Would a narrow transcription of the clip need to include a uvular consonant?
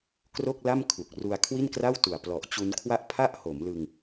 no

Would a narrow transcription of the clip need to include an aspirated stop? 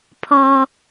yes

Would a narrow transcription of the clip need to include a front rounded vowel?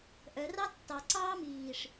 yes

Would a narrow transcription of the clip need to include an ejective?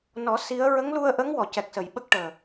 no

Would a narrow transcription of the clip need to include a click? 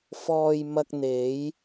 no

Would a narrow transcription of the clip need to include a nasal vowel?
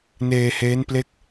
no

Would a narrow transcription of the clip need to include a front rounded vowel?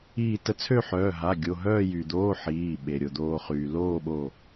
yes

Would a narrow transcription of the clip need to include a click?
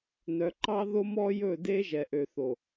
yes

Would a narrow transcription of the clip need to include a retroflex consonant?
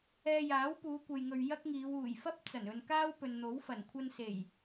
no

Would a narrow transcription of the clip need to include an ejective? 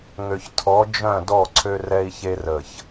no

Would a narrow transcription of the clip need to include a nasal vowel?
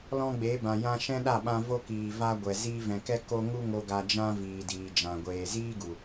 yes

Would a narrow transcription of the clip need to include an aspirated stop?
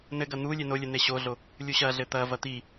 no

